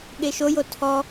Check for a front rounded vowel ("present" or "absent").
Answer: absent